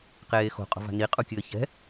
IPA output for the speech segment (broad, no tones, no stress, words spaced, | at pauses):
qeːxo̤ qʼo̤va̤ni qʼukʲɘːçɛ̤